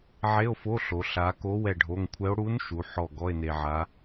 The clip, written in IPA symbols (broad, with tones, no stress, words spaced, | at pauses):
ʕe˧˥˧o̯fo˧˥˧ɬo˩˧ ɬa˩˧ ko˧˥ wɛ˧˩ɖʱo˩˧˩ŋkʷʰɛ˧˥o̯ ɽu˧˥n ʃu˩˧ħɔ˧˩ ɡɔ˧˥˧e̯n̪e˧ʕa˧˥